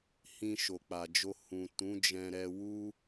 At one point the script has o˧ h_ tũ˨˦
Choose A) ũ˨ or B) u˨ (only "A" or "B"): A